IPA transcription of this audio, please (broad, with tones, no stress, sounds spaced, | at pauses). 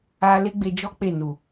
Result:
a˧ l e˦ ɡ͡b e˧ d͡ʒ ɔ˦ k͡p e˦˨ n u˨